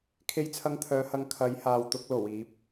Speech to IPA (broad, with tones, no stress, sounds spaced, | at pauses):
kʰ e˧ j t͡sʰ ɐ˧ ŋ t̪ʰ œː˨˧ h ɐ˨˧ ŋ kʰ ɐ˨˧ j h aː˨ w t̪ ʊ˧ k̚ l o˨˩ w iː˨˥ p̚